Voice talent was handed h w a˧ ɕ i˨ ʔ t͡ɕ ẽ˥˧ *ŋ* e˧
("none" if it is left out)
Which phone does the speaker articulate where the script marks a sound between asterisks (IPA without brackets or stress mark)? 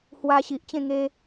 ŋ